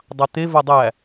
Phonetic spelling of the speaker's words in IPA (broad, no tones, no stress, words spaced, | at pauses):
dˤɑt̪e vodˤæ